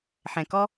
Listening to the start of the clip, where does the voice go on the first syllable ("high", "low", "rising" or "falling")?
low